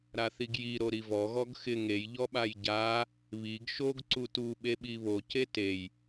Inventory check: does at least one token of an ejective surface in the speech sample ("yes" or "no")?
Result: no